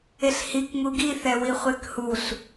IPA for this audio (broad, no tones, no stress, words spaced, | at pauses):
eɬhikŋu ɡiθɛwi χʷekhuɬ